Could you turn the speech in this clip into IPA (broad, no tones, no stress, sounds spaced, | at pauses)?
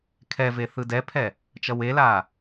kʰ ɛ v e θ ɯ d ɛ pʰ ɛ | t͡ʃ ʌ w e l aː